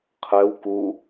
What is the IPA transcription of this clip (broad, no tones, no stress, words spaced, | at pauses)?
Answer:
qʰɛw ku